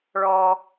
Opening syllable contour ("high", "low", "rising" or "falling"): low